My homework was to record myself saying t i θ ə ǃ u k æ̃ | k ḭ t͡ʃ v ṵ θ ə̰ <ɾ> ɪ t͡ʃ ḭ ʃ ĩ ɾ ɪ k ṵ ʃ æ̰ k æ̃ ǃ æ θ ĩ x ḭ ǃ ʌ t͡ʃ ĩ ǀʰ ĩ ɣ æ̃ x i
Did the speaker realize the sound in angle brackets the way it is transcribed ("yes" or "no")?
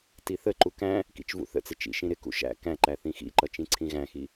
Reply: no